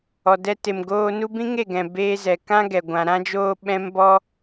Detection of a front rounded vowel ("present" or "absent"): absent